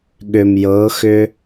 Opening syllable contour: low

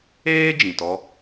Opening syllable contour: high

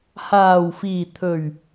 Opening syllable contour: low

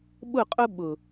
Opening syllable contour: falling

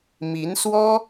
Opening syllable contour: rising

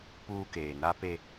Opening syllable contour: high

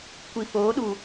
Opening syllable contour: low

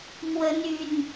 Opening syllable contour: rising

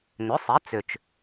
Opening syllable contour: rising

